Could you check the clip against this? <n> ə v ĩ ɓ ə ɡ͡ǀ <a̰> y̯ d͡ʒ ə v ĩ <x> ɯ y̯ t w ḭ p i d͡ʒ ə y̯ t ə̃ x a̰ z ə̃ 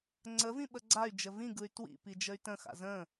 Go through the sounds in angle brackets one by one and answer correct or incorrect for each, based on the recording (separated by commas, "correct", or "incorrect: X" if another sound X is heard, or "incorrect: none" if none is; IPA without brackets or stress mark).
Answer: incorrect: ŋ͡ǀ, incorrect: a, incorrect: ɡ